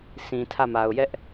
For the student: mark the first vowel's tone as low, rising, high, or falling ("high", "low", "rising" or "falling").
low